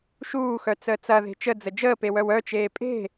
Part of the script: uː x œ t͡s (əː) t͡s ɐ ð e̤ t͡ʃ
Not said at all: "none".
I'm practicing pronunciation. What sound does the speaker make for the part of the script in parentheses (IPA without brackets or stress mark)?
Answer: əː